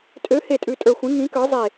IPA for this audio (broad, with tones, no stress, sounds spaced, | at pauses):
tʼ ø˨˥ h e˧˩ tʼ ʉ˧˩ tʼ ə˞˧˩ xʷ ĩ˨˥ ŋ ĩ˨˥ k ə˞˨˥ zˤ e˧˩